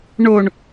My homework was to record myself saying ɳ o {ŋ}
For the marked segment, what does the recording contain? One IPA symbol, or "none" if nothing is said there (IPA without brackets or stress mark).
ɳ